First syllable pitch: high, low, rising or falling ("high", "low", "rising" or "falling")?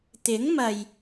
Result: rising